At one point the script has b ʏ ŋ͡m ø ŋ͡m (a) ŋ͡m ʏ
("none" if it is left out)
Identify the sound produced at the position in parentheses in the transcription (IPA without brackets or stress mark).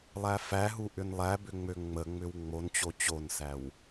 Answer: ə